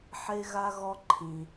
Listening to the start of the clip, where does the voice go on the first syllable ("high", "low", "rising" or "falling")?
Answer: high